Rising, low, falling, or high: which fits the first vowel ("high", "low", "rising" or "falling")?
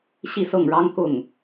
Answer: falling